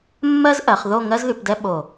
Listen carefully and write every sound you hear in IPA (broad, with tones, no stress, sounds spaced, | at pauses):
mː ɜ˥ z ʔ ɜ˩˧ χ ð o˥˧ ŋ ɜ˥ z ð y˩˧ p d ɛ˥ ɓ o˧˩